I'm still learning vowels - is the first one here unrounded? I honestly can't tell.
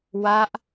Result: yes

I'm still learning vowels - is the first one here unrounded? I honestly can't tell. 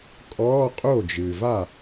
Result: no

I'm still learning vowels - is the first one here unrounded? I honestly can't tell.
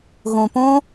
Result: no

